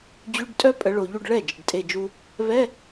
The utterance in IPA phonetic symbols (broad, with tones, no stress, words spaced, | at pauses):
d͡ʑy˧˥˧ɖtʼœ˥ pʼə˨˦ɭo˨ʎu˥˧ɖ ɭɛ˥˩ d͡ʒə˨ɖtʼe˥˧d͡ʒu˥ | βɛ˧˥˧